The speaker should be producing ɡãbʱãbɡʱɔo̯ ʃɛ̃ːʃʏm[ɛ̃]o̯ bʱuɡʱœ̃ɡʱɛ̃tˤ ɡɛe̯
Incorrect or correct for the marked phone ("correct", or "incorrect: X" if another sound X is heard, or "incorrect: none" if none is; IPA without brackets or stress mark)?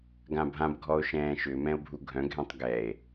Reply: correct